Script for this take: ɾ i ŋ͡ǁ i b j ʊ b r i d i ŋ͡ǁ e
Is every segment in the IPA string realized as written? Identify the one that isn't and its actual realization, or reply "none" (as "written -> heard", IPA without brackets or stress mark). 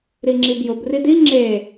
none